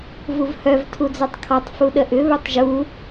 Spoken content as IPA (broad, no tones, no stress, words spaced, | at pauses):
vuvhœv tʰud͡zœtˤkʰɔtˤ fuɗəʔʏ βœtˤʒu